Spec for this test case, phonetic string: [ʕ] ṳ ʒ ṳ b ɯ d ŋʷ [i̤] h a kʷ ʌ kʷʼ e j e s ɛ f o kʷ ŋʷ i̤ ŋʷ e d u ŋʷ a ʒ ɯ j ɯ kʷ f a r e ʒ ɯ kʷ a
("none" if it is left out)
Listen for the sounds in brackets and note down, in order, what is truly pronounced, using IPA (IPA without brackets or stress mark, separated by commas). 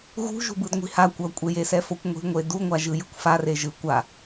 ɣ, i̤